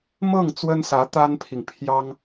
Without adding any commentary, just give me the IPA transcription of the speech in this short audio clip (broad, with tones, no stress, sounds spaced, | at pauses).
m ɤ˥˩ ŋ t͡s w ə˥ n s ä˧˥ t̪ a˥ n pʰ i˨ ŋ pʰ j ɑ˥ ŋ